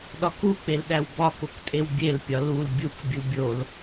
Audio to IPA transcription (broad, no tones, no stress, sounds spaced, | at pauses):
ɗ ɒ k u k͡p e l ɗ æ w b ɒ k o k tʼ e w bʲ e l pʲ ɒ l u l bʲ u k bʲ u bʲ o l